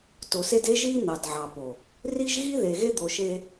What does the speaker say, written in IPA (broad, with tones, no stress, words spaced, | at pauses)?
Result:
to˨se˦d e˦ʒi˦ n̪ɑ˨dʕɑ˨po˨ | ri˦ʒɣi˦ðe˨ ɣe˦d̪o˨ʃe˦